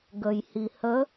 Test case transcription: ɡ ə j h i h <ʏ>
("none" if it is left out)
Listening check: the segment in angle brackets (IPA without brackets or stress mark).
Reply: ə